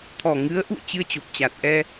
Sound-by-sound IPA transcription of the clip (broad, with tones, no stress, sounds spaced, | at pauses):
t̪ʰ ɔ˨˩ ŋ ɨ˨˦ ə̯ ʔ ṵ˧˨ ə̯ t͡ɕ ɨ˧ ə̯ t͡ɕ o˨˩ p̚ t͡ɕ a˨˩ t̚ ʔ ɛ˧